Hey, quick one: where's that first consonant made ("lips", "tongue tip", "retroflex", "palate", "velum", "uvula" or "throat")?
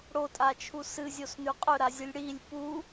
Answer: retroflex